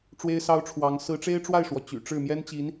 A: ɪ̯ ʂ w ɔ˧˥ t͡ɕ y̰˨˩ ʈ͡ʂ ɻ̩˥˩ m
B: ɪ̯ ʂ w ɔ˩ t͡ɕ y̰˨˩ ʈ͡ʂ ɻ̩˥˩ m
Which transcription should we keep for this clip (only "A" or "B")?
B